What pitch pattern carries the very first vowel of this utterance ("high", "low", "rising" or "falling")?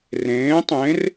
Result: rising